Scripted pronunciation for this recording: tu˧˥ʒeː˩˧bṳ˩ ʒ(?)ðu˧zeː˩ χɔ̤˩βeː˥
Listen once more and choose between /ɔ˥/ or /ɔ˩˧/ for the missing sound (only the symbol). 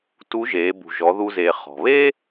ɔ˩˧